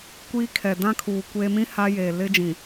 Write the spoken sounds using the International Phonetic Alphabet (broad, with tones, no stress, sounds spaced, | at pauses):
kʷ iː˦ kʰ ɛ˨ d ã˦ kʰ uː˨ kʷ e˦ m ĩ˦ h a˦ j eː˨ l ɪ˦ d͡ʒ ĩ˨